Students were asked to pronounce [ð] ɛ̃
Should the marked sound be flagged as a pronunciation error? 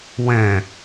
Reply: yes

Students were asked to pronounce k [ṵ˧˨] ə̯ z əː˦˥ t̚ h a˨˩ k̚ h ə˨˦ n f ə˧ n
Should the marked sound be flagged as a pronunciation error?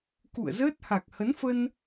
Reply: no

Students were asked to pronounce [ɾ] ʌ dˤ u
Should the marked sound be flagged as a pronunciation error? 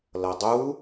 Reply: yes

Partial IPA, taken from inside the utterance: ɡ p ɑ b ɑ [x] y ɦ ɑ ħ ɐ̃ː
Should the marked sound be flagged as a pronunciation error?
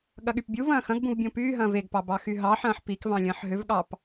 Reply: no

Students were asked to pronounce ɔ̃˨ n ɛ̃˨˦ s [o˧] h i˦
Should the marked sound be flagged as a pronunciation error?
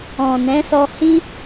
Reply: yes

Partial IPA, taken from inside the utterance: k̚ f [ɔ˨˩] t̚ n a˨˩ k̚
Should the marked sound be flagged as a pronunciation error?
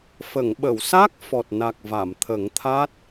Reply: no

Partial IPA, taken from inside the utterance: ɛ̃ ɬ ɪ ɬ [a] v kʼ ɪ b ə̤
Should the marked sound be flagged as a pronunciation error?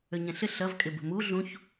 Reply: yes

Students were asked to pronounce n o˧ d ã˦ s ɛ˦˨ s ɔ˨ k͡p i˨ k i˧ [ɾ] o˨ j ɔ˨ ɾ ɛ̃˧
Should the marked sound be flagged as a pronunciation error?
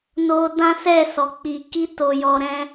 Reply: yes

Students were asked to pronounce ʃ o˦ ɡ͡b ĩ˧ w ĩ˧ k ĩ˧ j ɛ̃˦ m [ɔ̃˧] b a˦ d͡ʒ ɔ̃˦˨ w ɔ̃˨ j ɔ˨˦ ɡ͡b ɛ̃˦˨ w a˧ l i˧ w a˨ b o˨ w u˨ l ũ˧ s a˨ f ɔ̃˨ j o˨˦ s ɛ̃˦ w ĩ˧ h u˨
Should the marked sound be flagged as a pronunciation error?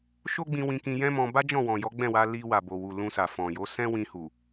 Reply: no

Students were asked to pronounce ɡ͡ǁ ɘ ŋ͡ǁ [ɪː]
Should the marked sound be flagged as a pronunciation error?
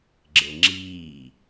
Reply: yes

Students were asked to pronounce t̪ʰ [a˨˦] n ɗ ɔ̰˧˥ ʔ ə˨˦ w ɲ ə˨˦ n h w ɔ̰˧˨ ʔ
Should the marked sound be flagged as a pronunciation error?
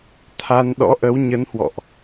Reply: yes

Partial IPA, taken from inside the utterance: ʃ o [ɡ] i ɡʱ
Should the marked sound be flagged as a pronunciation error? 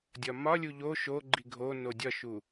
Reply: yes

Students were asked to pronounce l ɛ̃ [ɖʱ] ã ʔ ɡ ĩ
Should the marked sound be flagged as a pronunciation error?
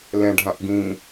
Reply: no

